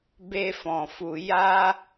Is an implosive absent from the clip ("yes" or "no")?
yes